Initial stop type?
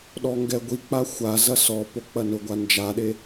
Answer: implosive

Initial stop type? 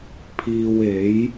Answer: aspirated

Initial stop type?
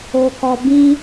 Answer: plain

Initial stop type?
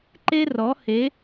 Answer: click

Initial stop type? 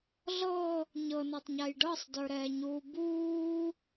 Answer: plain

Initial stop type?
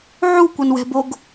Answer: plain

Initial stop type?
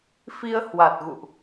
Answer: plain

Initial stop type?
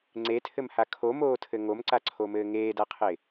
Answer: click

